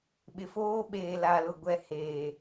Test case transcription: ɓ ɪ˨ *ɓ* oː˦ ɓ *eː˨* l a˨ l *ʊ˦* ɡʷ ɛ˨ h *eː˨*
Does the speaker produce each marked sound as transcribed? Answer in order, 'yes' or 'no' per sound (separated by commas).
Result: no, yes, no, yes